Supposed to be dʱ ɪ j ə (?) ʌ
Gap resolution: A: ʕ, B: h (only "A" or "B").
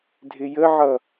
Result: A